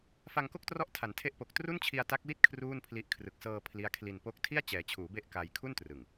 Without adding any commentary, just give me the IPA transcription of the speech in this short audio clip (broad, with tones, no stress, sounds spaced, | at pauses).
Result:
f a˧ ŋ k o˥˩ k̚ t r ɔ˦˥ ʔ tʰ a˩˦ n tʰ e˦˥ ʔ p o˨˩ k̚ t r u˥˩ n t͡ɕʰ i˧ a̯ t a˦˥ k̚ w i˥˩ t̚ kʰ r uː˥˩ n pʰ l i˦˥ ʔ kʰ r ɯ˨˩ k̚ s ɤː˧ pʰ l i˦˥ a̯ kʰ l i˧ n p o˦˥ k̚ tʰ i˥˩ a̯ t͡ɕ ɛː˩˦ t͡ɕʰ uː˩˦ b e˦˥ ʔ k a˧ j kʰ u˥˩ n t r ɯ˨˩ ŋ